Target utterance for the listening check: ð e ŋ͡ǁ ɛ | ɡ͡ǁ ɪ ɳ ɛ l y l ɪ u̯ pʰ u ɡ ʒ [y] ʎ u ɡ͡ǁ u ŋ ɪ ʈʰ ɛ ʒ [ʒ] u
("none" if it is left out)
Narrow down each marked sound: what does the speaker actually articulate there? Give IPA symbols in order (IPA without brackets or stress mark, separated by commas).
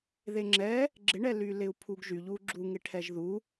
y, ð